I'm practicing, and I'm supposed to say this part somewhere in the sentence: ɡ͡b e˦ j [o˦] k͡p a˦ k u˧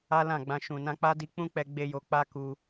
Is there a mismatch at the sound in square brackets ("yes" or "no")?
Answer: yes